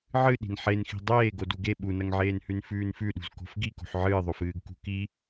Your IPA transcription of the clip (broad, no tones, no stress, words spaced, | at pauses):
ʕɨɗi̤n ħenxi̤ dˤeːɡ oduɡe ɓunɐŋʕeːnhʉn fʉːnfʉɗṳz ko̤fɡiko̤ħ ʕɨːðˤofɨːɡ kṳki